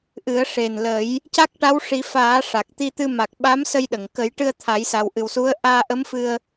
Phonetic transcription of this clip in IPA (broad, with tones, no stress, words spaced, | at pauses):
ʔɨ˨˩˦ə̯ʂe˨˩n lə˨˩˦j | ca˦˥k̚ʈa˧˥wʂi˨˩˦ faː˨˩˦ ʂa˨˩k̚t̪i˧t̪ɨ˧ ma˨˩k̚ɓa˧˥m sə˧jɗə˨˩˨ŋ kə˨˩˦jʈɨ˧ə̯ t̪ʰa˨˩˦jsa˨˩wʔɨ˨˩wsu˧˥ə̯ ʔaː˧ʔə˧˥mfɨ˧ə̯